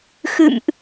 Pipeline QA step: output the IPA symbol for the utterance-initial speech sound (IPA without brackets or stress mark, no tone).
x